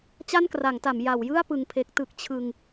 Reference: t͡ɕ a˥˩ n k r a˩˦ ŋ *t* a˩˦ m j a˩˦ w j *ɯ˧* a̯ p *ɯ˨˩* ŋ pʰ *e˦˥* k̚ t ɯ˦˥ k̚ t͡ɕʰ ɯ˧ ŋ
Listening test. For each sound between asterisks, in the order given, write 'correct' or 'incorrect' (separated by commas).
correct, incorrect, incorrect, correct